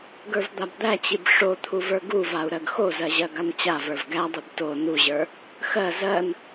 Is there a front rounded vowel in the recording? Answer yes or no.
no